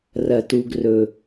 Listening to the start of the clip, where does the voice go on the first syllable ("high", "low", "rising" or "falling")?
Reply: low